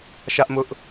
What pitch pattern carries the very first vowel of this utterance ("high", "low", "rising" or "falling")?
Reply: high